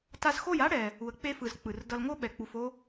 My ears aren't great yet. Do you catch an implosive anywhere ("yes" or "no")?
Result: yes